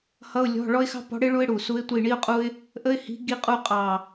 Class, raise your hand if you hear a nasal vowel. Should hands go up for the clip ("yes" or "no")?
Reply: no